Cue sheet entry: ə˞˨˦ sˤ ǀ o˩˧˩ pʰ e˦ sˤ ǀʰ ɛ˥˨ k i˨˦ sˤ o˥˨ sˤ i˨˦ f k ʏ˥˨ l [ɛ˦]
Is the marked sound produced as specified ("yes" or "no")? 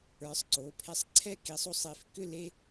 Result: no